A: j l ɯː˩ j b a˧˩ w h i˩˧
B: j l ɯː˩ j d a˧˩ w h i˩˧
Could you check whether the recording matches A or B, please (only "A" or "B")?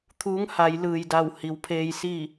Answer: B